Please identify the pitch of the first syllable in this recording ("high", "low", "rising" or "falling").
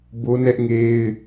high